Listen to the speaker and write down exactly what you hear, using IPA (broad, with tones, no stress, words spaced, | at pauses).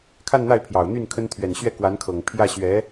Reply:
kʰa˥˧nn̪a˥˩ɪ̯pʰjɑ˨˩ʊ̯ n̪y˥˩nkʰə˥n t̪ʰɥɛ˨˩nɕɥɛ˥˩kwa˧˥nkʰɤ˨˩ŋ pʰjä˥˩ɕɥɛ˧˥